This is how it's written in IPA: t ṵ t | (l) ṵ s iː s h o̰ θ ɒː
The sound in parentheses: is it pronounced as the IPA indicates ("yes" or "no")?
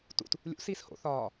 no